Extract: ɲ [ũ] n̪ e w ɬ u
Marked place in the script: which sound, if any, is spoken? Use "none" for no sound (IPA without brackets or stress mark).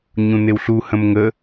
ũ